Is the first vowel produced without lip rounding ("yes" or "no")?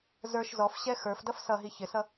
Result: yes